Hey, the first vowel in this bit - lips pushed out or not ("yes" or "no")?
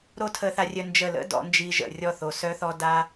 yes